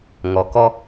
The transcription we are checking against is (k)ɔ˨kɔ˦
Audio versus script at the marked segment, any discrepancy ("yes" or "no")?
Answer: yes